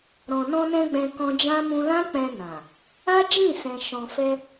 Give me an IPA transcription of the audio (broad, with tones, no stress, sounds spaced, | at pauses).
ɾ ɔ̃˨ n ɔ̃˧ n ɛ̃˧ ɡ͡b ɛ̃˧ k ɔ̃˧ d͡ʒ ã˦ m ũ˧ l ã˦ k͡p ɛ̃˧ n ã˨ | a˦ d͡ʒ ĩ˦˨ s ɛ̃˨ ʃ ɔ̃˨ f ɛ˧